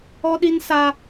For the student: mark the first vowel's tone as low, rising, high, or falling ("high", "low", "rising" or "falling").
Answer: high